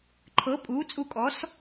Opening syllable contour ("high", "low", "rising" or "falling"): rising